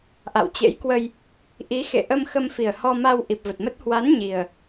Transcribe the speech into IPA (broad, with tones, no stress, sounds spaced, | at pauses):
ʔ a̰˧˨ w t͡ɕ ḛ˧˥ j k w ə˧ j | ʔ i˨˦ x ḛ˧˨ ʔ ə˧ m x ə˧ m f i˨˩ ə̯ h ɔ˧ m a˧ w ʔ i˨˩ p̚ v ə˨˩ t̚ m ə˦˥ t̚ h w a˨˦ n ɲ i˨˩ ə̯